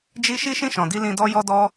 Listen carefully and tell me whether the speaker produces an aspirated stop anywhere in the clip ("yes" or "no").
no